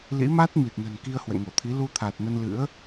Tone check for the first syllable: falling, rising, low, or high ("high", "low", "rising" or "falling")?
rising